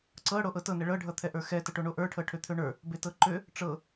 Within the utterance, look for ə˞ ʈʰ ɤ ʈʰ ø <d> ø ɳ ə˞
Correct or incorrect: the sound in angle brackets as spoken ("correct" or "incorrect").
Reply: incorrect